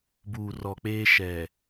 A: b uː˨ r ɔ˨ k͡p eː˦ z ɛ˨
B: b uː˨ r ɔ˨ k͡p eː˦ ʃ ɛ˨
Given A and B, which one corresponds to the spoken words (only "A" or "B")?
B